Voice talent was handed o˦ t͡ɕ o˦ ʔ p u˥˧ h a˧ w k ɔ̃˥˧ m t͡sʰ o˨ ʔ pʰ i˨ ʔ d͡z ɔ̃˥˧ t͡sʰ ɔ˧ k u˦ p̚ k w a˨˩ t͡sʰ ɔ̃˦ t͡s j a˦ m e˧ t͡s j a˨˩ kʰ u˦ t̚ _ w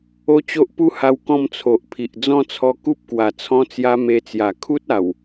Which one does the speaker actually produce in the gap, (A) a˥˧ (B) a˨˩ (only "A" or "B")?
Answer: B